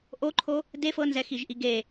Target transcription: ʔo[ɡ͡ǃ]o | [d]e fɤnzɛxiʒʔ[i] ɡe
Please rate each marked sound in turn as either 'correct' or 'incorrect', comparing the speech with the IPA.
incorrect: ǃʰ, correct, correct

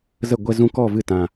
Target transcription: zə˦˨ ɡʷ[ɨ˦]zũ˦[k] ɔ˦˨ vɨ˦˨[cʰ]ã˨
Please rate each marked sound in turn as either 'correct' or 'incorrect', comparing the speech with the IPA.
incorrect: ɛ˦, correct, incorrect: t

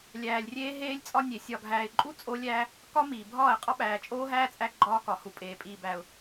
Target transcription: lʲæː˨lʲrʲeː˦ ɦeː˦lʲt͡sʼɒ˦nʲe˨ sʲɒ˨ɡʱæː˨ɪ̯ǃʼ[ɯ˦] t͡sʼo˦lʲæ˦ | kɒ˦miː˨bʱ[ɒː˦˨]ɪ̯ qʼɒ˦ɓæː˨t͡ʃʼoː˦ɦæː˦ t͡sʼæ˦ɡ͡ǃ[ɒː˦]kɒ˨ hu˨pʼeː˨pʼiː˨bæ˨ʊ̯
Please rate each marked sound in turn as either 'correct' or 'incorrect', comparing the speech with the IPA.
incorrect: u˦, correct, correct

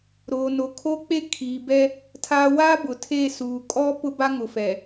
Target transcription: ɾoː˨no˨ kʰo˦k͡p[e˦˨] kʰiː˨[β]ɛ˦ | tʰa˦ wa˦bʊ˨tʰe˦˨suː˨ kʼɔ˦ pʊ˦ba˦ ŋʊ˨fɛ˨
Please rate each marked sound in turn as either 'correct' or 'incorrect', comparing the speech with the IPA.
incorrect: e˦, incorrect: b

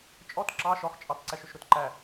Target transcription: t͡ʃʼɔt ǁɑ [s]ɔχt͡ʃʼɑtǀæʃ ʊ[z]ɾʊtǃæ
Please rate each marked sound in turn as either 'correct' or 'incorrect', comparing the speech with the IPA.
incorrect: ʃ, incorrect: ʃ

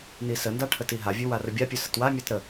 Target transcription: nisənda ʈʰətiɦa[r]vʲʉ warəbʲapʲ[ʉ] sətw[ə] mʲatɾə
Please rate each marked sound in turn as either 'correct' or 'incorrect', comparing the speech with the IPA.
incorrect: none, correct, incorrect: a

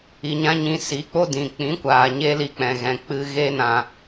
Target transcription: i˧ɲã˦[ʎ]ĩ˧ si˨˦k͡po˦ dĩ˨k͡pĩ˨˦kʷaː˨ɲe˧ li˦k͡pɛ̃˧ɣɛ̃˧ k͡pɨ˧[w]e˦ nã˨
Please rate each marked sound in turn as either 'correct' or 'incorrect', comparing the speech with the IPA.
incorrect: ɲ, incorrect: ɣ

